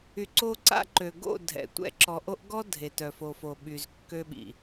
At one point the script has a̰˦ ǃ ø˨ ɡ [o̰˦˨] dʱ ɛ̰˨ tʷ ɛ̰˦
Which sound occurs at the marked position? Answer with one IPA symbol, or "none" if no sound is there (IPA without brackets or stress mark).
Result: o̰˦˨